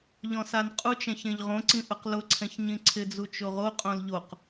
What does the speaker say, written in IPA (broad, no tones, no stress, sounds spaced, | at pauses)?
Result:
ʎ ɔ̃ s a n qʼ u t͡ʃ ɛ̃ ç ẽ ʎ ʁ õ ǀ ĩ ʔ ʊ q l ʊ ǀʰ ɛ̃ ç ɲ ĩ ǀʰ ɪ d͡z u t͡ʃ o ʁ o qʼ õ l ʎ o q